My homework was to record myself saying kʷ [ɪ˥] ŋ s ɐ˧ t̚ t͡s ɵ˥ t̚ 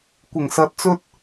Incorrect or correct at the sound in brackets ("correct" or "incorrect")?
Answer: incorrect